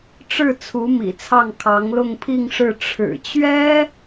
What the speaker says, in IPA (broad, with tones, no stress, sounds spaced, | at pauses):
ʈ͡ʂ ɻ̩˥˩ t͡sʰ u˧˥ m ḭ˨˩ t͡sʰ ɑ˥˩ ŋ kʰ ɑ˧˥ ŋ l ʊ˥˧ ŋ pʰ i˥˧ ŋ ʂ ɻ̩˥˩ ʈ͡ʂʰ ɻ̩˨˩ t͡ɕ ɥ ɛ˥